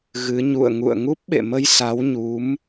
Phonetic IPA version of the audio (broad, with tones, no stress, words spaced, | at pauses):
ɣɨ˨˦ ɲṵ˧˨ə̯ŋṵ˧˨ə̯ ŋu˦˥p̚ɓḛ˧˨mə˧j sa˨˦wɲu˨˦m